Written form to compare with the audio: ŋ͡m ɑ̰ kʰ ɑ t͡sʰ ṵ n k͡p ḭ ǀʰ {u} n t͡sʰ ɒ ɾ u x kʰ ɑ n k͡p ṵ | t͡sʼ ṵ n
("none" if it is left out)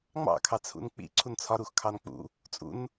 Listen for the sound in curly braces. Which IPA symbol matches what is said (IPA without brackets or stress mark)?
u